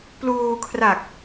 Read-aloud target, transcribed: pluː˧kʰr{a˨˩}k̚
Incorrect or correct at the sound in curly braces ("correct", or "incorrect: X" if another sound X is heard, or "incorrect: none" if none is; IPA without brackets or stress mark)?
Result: correct